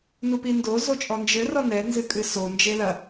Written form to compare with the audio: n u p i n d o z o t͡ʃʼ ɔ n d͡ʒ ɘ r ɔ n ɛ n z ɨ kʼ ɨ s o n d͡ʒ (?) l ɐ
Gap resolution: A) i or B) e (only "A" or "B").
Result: B